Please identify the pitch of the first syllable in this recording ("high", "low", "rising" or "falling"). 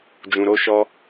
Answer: low